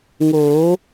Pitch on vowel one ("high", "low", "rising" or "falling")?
rising